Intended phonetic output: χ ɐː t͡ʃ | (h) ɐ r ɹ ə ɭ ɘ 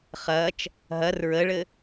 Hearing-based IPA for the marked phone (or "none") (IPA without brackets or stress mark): ɦ